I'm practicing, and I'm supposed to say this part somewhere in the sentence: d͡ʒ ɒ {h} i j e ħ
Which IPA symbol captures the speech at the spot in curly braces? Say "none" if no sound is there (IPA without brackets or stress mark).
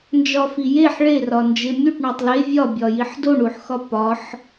f